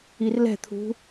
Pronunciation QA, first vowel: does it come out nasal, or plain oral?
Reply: oral